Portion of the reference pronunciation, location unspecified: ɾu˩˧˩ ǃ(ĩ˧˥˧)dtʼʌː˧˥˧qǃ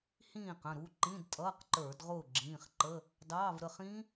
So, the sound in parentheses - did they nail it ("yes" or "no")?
yes